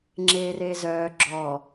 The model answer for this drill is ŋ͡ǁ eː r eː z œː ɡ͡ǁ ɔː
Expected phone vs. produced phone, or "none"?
none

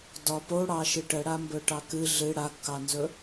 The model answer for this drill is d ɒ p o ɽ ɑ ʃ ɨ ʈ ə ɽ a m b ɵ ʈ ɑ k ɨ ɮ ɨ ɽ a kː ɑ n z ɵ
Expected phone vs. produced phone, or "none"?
none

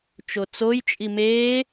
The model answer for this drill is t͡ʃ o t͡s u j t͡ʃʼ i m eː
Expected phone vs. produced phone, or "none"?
u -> o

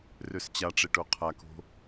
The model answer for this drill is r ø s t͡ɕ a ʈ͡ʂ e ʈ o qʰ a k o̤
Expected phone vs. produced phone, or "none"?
none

